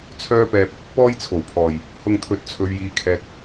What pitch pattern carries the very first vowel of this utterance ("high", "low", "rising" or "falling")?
high